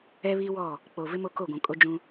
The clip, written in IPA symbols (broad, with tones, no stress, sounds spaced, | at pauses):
ɛ˦ β i˦ w ɔ˦˨ | k͡p o˨ v ɪ˦ m o˦ k o˦˨ ɡʷ ũ˨ kʼ o˦ d͡ʒ ũ˦